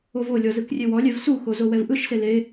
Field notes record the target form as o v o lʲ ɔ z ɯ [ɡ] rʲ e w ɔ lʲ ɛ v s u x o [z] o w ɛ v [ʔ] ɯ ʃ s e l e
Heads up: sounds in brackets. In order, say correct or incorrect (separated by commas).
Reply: incorrect, correct, correct